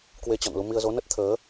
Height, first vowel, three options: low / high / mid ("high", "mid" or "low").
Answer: mid